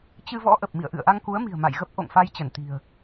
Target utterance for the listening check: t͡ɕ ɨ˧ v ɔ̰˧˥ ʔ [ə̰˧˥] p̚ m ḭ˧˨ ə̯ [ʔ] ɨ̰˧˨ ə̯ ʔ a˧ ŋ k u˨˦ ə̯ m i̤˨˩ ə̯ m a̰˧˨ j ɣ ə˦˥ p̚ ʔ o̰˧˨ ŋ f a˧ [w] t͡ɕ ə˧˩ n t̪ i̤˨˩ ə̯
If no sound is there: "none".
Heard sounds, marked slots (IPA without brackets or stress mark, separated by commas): ə˨˩, ʔ, j